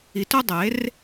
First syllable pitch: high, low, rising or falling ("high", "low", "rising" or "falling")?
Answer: low